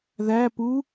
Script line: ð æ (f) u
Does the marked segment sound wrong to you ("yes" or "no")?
yes